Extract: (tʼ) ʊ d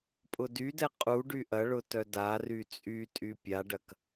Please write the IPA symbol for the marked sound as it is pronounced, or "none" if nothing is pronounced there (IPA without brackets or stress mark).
pʼ